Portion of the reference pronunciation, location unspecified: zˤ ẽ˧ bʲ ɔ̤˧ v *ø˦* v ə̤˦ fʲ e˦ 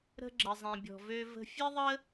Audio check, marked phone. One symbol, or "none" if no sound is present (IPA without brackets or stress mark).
ø˦